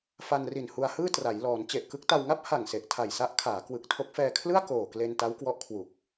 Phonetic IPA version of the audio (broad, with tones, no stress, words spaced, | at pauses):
fa˧nri˨˩nhu˧a̯hɯː˥˩ tra˩˦j lɔː˩˦n t͡ɕe˨˩ʔkɯ˦˥k̚ta˧wŋa˥˩p̚ ha˨˩ŋ se˨˩ʔtʰa˨˩jsa˦˥ʔkʰaː˩˦ kwɯ˨˩k̚tʰo˦˥k̚ fɛː˧kʰlɯ˥˩a̯ koː˨˩kle˧n ta˦˥wkwɔ˦˥ʔkʰwu˨˩k̚